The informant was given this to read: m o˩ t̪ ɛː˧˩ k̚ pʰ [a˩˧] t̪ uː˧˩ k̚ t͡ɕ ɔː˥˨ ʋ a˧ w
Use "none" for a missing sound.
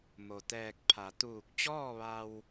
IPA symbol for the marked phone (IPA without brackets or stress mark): a˩˧